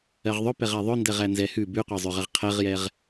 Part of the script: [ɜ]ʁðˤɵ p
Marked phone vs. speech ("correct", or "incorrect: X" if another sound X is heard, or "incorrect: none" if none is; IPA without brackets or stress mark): correct